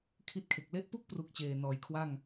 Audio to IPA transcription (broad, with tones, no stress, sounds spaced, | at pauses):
kʰ i˥˩ t̚ kʰ e˨˩ k̚ l e˦˥ ʔ p u˥˩ k̚ p r u˦˥ k̚ t͡ɕ eː˨˩ n ɔː˩˦ j kʰ w a˥˩ ŋ